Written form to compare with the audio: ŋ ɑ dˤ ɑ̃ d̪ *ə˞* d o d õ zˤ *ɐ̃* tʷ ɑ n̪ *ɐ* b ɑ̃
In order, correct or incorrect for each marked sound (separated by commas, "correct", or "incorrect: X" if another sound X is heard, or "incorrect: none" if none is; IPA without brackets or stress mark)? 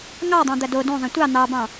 incorrect: ɐ, correct, incorrect: ɑ